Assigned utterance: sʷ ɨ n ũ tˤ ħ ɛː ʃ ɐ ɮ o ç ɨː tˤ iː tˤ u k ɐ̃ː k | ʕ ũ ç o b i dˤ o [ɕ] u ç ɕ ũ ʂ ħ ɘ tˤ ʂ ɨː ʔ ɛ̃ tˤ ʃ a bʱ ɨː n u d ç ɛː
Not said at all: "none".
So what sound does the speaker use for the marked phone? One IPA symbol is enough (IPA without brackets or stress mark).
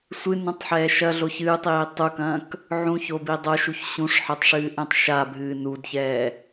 ʃ